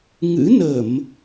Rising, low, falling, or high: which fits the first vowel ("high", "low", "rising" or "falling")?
rising